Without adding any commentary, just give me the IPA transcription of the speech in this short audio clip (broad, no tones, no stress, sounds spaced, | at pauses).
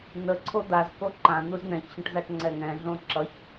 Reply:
n̪ ə ǀʰ o d̪ a z k o ǃ ã n̪ u z n̪ ɛ̃ ç ɕ ə̃ ʈ z a ʈ ŋ͡ǀ ɛ ŋ ɛ̃ ɮ õ ǁ ʌ ç